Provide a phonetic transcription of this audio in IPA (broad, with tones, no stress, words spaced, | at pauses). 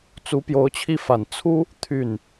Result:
t͡su˧˥pjo˧˥ʊ̯ t͡ɕʰi˥˩fa˨˩n t͡sʰu˥ | t̪ʰy˥˩n